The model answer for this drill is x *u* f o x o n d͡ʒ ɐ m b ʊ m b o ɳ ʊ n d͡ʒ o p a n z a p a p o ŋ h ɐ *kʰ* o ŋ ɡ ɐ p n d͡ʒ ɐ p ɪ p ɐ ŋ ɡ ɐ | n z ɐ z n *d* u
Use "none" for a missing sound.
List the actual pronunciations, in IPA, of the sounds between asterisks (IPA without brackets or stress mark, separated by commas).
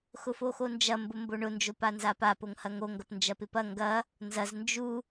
ʊ, ŋ, d͡ʒ